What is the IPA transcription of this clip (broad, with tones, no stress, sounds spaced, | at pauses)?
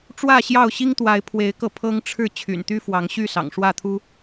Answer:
ʈ͡ʂ w ä˥˨ ɕ j ɑ˥˨ ʊ̯ ɕ i˦ ŋ t̪ w a˨˦ ɪ̯ pʰ w e˨˦ ɪ̯ k ɤ˧ pʰ ɤ˦ ŋ ʈ͡ʂʰ ɻ̩˥˨ t͡ɕʰ y̰˨˩ n t̪ y˦ f w ɑ˨˦ ŋ ɕ y˥˨ s ɑ̰˨˩ ŋ ʂ w ä˥˨ t̪ʰ u˦